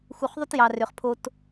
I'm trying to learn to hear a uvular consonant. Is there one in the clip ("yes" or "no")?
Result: yes